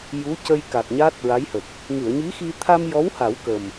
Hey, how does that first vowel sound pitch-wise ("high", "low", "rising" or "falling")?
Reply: rising